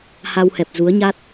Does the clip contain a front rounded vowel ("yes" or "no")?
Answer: no